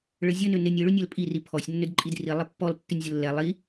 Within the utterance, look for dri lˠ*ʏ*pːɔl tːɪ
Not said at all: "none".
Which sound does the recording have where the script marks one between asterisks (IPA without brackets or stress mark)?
ɪ